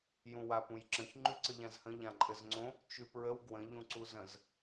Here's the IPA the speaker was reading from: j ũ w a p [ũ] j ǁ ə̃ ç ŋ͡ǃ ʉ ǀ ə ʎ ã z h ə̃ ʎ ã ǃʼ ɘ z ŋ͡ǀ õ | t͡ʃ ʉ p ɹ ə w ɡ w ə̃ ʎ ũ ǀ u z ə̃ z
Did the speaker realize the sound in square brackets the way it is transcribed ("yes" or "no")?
yes